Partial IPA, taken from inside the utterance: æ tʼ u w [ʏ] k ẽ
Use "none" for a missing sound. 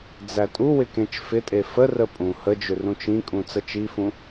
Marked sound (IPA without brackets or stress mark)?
ɪ